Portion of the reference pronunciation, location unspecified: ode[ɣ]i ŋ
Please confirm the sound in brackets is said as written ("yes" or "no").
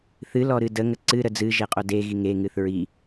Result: yes